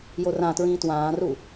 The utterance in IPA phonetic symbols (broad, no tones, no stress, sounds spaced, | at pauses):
j o r ã t ɹ ĩː t w ãː r u